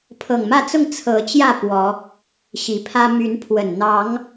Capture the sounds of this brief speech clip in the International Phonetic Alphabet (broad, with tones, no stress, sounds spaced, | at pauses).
pʰ ɤ˨˩ ŋ m ä˥˨ t͡s ʊ˥˨ ŋ t͡sʰ ɤ˨˦ t͡ɕ j ä˥˨ p w ɔ˨˦ | ɕ i˨˩ pʰ ä˦ m y˨˦ n pʰ w ə˨˩ n n̪ ɑ˨˦ ŋ